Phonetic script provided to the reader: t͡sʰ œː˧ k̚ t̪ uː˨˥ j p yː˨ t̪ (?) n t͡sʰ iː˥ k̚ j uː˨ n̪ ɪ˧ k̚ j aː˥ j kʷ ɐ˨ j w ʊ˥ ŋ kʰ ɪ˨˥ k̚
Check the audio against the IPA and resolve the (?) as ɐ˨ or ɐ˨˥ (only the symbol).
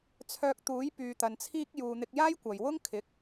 ɐ˨